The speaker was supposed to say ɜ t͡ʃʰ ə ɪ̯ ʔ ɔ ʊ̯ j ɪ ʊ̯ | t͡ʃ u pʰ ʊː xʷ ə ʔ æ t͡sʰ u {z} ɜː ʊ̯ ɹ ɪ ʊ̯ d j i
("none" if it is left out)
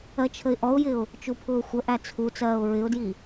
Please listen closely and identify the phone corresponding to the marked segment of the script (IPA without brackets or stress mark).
t͡s